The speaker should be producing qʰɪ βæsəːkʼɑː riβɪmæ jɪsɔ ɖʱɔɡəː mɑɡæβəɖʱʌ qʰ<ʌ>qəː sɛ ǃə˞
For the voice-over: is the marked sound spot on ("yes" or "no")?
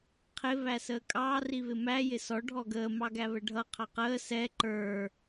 no